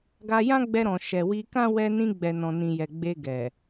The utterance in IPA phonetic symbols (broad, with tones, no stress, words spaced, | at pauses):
ɡa˧jã˦ɡ͡bɛ˧ɾɔ̃˨ ʃɛ˨wi˧kã˦ wɛ˧nĩ˧ɡ͡bɛ˨ nɔ̃˨nĩ˨jɛ˨ ɡ͡be˧ɡɛ˨